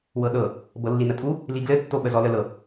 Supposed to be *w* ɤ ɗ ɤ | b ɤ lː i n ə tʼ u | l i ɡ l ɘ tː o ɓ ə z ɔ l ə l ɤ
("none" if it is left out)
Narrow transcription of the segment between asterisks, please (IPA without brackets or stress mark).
w